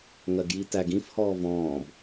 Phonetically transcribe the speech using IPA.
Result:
ŋ ɜ ɡ j i t æ ɡ ĩ f h ɔː v ɔ̃ː b

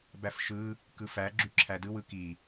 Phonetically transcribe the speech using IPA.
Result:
b æ f ʃ ɯ | k ɯ f æ ɡ͡ǁ y ǁʰ æ d ɯ w ɯ k i

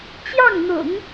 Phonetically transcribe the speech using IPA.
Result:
t͡ɕ j ɑ˥˩ ŋ n̪ ʊ̰˨˩˦ ŋ

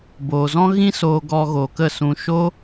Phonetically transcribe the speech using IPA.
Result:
b oː˨ z ɔ̃˦ ɣ ĩ˦ s oː˧ ɡ ɔ˧ ɣ o˨ k ə˦˨ s ũ˧ ʃ o˦

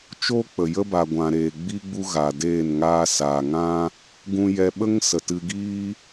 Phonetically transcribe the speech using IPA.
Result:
t͡ʃ oː˦ k͡p ə˨ j ə˦ b a˨ ɡʷ ã˨ ɾ eː˨ ɡ͡b i˦ ɡ͡b u˦ ɣ a˨ d eː˦˨ n ŋ aː˧ s aː˨ ŋ ã˦ | ɡ ũ˧ j ɛ˧ ɓ ə˦ ŋ s ə˨ t ɨ˧ ɡ iː˦

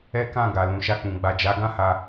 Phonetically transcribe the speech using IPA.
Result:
ɛ˦ k ã˦˨ ɡ a˨ l ũ˨ ʃ a˧ k͡p ũ˨ ɡ͡b a˨ d͡ʒ a˨˦ ɡ ã˦ h a˧

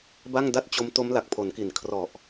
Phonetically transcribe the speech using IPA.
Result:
b a˥˩ ŋ d a˥˩ t̚ t͡ɕ o˦˥ m t o˦˥ m l a˨˩ k̚ pʰ o˩˦ n k i˨˩ n kʰ r ɔ˨˩ ʔ

